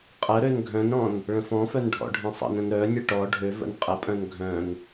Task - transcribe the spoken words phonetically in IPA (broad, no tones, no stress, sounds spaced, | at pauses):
qʼ ə ɾ ø n ɡʱ œ̃ n ɾ ɔ̃ n | ɭ ə̃ f ɔ̃ f œ n ɖʱ ɔ̰ ɖʱ ẽ sˤ ə̰ n ə̃ n ɾ œ nʲ ə ʈ ɔ ɖʱ ø v ə̰ n qʼ ə pʼ œ̃ n ɡʱ œ̃ n